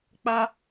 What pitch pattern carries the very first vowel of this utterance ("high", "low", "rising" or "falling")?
high